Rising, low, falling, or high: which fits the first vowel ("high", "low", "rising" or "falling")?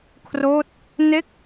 falling